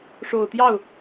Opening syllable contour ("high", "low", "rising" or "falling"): low